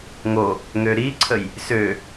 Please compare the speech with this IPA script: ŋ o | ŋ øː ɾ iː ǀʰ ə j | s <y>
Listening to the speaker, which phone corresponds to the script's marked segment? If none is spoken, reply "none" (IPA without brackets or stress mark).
ø